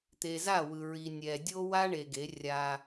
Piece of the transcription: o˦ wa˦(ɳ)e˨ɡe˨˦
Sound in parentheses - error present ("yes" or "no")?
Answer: no